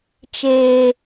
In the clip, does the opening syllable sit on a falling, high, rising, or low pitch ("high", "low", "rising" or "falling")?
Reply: low